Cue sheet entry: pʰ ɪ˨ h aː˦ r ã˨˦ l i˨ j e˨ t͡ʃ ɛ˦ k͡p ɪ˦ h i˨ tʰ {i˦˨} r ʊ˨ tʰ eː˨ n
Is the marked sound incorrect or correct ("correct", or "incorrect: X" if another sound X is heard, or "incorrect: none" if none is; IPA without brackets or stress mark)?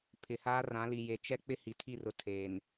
correct